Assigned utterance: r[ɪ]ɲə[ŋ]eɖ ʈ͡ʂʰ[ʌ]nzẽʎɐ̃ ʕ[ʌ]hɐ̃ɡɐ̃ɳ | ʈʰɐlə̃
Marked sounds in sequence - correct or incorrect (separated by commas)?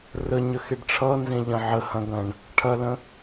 incorrect, incorrect, correct, incorrect